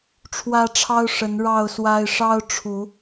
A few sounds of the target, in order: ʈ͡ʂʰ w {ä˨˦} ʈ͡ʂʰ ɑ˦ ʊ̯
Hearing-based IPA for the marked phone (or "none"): ä˦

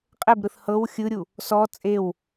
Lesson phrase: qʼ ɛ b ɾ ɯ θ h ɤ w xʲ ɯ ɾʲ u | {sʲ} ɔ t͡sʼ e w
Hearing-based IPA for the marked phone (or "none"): s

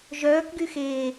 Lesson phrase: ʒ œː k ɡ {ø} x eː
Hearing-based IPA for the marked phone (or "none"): y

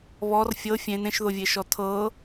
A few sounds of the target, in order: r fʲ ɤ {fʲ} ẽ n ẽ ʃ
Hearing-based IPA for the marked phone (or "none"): fʲ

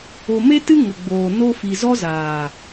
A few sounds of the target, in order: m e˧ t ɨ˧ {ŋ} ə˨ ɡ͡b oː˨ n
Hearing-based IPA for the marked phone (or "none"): ŋ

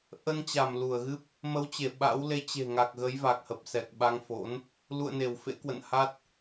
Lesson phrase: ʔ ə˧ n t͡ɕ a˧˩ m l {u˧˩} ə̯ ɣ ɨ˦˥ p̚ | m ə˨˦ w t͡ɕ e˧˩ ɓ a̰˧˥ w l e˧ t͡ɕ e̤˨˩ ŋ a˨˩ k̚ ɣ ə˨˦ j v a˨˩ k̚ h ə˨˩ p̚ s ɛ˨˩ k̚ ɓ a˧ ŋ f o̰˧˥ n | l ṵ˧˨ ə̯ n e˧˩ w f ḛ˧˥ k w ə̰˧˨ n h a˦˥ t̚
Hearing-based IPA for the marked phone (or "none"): u˧˩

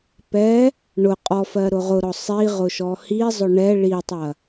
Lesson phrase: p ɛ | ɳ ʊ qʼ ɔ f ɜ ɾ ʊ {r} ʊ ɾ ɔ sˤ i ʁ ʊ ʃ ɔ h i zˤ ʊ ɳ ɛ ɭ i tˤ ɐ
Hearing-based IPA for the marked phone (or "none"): ʁ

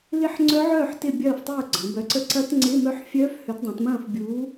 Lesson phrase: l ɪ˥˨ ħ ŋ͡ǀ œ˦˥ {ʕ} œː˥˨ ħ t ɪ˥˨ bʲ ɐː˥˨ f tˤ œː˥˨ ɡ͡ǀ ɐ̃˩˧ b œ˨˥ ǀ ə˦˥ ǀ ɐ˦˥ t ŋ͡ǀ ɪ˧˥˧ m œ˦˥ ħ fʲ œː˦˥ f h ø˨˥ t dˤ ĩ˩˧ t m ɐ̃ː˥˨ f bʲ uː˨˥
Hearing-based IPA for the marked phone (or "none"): ʕ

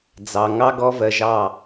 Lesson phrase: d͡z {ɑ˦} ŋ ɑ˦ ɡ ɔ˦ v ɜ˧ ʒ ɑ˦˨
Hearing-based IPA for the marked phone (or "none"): ɑ˨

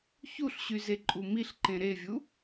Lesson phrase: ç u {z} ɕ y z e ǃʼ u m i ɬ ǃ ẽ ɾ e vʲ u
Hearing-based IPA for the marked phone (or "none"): ɬ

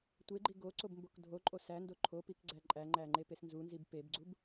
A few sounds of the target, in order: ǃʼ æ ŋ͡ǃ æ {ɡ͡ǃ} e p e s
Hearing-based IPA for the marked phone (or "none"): ŋ͡ǃ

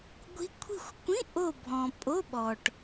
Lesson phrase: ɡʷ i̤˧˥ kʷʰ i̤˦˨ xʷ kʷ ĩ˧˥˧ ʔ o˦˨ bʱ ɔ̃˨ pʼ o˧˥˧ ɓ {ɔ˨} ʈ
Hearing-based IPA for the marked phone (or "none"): ɔ˨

